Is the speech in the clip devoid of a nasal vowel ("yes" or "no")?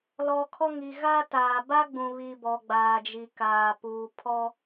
no